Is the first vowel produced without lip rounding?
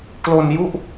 no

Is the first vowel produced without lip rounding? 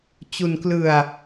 no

